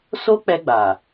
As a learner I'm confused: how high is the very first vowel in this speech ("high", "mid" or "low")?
mid